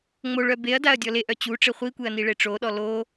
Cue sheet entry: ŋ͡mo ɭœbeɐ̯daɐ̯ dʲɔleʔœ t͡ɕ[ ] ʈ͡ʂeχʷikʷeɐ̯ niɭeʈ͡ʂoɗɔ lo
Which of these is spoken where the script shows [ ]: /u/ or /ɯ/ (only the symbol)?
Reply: u